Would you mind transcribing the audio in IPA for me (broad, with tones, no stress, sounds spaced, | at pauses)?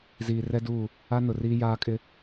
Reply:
z iː˨ r ɛ˦ d uː˦˨ | a˦ n ʊ˨ r iː˦ j aː˦ kʼ ɪ˦